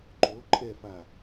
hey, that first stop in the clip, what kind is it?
click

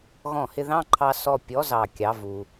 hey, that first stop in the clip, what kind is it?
click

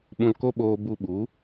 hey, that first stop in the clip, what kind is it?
implosive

